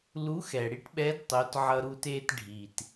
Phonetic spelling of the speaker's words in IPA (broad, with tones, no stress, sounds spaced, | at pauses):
l u˧˥ x ɛ˩ ɽ i˥ ʈ ɓ ɛ˧˥ d tˤ o˩˧ t ʕ ʌ˧ ɾ u˧ t e˧ t ɖʱ i˩ t